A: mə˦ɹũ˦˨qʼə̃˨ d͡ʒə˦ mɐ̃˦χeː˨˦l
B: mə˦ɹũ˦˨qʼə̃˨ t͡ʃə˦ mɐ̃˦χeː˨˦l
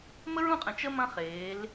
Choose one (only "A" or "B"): B